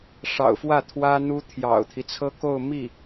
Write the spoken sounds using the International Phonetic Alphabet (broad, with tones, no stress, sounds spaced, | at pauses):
ʂ ɑ̰˨˩ ʊ̯ f w ä˥˩ t̪ʰ w ä˥ n̪ u˥ t̪ʰ j ɑ̰˨˩ ʊ̯ t̪ʰ i˦ t͡sʰ ɤ˥ k o˥˧ ʊ̯ m i˥˩